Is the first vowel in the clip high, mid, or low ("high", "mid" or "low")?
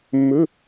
mid